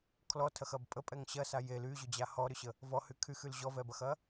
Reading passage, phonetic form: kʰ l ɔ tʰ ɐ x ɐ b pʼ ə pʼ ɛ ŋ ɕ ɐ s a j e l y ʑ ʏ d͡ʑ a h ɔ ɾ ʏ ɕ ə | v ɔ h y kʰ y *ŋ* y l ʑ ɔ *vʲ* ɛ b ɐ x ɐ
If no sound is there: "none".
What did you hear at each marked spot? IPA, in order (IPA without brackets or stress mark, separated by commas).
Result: x, v